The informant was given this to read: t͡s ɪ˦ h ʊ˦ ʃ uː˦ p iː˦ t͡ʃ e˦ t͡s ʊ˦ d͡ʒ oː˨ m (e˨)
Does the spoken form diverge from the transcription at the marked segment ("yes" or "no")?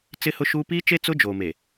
no